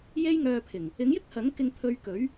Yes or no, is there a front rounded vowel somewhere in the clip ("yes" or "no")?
yes